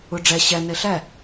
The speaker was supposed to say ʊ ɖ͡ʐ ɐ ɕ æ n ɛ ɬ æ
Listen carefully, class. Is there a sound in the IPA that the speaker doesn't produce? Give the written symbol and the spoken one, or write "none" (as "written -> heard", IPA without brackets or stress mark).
ɐ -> æ